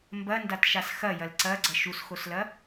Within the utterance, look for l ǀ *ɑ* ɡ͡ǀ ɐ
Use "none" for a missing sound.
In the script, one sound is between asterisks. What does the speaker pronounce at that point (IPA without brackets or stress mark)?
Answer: ɐ